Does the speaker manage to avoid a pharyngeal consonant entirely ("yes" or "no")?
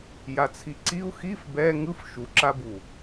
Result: yes